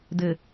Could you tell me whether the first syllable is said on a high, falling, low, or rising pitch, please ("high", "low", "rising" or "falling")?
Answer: low